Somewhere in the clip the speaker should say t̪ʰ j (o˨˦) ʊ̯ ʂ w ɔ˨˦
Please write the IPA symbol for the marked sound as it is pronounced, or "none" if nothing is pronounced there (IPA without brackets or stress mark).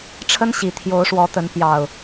o˨˦